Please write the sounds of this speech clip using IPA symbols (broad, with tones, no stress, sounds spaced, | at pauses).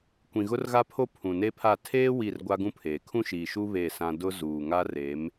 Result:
kʷ ĩ˨ ɣ ʊ˦ r ɣ a˦ pʰ o˦ pʰ ũ˨ n e˦ pʰ a˦˨ tʰ eː˦ w i˦˨ r ɡʷ a˦ ɡ ũ˦ pʰ eː˨ kʰ ũ˦ ʃ iː˨ ʃ u˦ β e˦˨ s ã˦ d ʊ˦ z uː˨ ŋ a˦ r e˨˦ m